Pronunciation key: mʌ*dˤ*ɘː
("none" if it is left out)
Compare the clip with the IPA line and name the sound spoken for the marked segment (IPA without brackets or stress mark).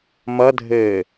dʱ